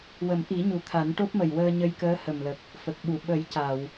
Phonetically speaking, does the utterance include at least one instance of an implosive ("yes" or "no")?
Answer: yes